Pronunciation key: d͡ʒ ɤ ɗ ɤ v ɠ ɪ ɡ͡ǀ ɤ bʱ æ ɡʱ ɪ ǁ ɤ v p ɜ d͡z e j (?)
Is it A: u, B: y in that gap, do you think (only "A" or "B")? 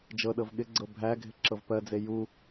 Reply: A